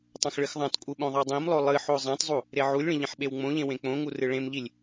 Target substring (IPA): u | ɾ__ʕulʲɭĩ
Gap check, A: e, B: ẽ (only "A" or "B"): A